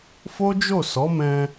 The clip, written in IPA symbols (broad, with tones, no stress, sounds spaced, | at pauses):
f o˦ d͡ʒ o˦˨ s ɔ˨˦ m ɛ̃˧